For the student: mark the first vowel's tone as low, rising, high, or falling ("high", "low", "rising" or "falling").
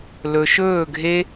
low